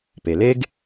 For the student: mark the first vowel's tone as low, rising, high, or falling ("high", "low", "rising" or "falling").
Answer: low